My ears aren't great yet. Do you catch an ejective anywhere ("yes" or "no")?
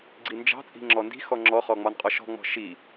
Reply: yes